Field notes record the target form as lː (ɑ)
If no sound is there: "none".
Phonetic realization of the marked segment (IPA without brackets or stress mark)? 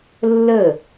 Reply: ə